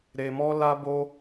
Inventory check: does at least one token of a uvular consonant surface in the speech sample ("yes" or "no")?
no